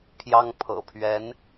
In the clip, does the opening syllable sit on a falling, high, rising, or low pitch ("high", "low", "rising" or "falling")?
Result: high